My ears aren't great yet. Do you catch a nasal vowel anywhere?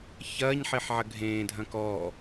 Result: yes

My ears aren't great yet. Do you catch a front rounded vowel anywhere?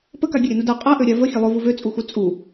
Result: yes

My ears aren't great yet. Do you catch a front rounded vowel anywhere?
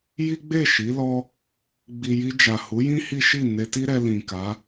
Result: no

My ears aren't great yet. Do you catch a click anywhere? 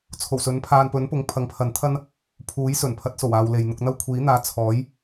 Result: no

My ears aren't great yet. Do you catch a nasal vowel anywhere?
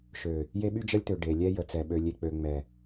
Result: no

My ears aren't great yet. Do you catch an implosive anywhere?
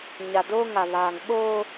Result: yes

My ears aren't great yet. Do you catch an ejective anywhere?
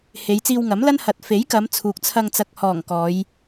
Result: no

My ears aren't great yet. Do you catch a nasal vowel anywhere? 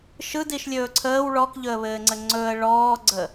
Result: no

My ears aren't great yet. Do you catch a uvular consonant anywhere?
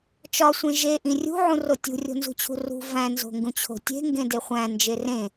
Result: yes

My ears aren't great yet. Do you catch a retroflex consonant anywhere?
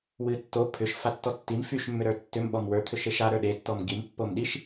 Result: no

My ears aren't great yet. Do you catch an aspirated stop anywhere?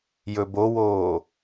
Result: no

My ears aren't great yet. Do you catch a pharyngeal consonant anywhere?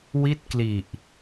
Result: no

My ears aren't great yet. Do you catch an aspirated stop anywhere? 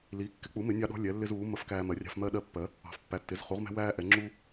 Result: no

